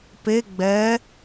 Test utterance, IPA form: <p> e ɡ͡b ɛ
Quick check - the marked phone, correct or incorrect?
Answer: correct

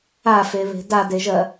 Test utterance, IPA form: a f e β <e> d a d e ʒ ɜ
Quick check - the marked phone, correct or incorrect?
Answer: incorrect: e̤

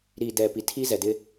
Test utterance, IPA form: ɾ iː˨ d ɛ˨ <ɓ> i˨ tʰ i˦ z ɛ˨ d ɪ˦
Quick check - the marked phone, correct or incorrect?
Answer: incorrect: p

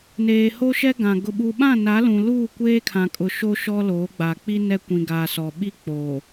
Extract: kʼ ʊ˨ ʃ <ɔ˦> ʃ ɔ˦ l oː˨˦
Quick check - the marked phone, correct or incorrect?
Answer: incorrect: o˦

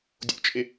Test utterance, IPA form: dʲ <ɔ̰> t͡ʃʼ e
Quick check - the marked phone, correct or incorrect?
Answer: incorrect: o̰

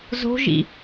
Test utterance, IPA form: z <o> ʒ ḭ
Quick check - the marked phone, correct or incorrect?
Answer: incorrect: o̤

